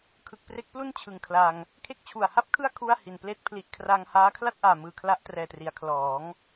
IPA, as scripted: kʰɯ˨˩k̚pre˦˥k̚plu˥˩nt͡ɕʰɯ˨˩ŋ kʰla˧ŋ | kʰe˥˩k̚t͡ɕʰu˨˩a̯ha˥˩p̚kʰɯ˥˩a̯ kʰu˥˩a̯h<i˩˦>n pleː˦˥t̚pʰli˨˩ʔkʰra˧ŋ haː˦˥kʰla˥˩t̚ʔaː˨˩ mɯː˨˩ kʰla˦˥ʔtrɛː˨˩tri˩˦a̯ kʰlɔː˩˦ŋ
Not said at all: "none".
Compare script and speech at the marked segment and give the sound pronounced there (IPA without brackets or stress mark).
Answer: i˨˩